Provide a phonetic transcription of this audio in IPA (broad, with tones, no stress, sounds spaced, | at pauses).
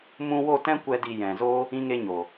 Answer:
m ũ˦ w o˦˨ t ɛ̃˦ kʷ ɛ˦ d i˧ j ɛ̃˨ z o˦ | ĩ˦ ŋ e˦ ɲ o˨